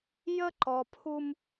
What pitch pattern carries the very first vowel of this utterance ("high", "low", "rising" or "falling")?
high